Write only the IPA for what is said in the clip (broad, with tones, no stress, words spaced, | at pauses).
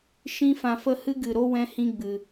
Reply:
ʃĩ˧fã˨fə˧ hɨ˦ɡɨ˨ɾo˦ wɛ̃˦hĩ˦ɡ͡bɨ˨